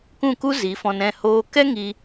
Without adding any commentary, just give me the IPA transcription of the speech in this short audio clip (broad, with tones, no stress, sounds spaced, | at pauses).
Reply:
k ũ˦˨ k u˦ z i˨˦ f ɔ̃˧ n ɛ̃˦˨ h oː˧ k ɛ˦ ŋ i˧